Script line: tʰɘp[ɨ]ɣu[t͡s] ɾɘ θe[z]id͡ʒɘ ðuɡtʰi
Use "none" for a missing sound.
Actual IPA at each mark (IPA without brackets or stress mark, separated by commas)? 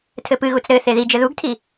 ɨ, t͡s, ð